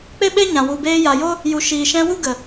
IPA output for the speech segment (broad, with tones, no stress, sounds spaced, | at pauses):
k͡p e˦ ɓ e˦ ɲ ã˨ w u˨ b eː˧ j a˨ j o˦ | j u˨ ʃ iː˨ ʃ ɛ̃˧ w u˦ ɡ ə˨